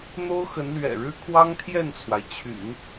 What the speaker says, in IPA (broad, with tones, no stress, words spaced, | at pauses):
n̪o˥ʊ̯xə˧˥nlɥɛ̰˨˩ɻɻ̩˥ kʰwɑ˥ŋt̪ʰjɛ˥˩nt͡sʰwa˩ɪ̯ t͡ɕʰy̰˨˩˦n